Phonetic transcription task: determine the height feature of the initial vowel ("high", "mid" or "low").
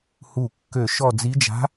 high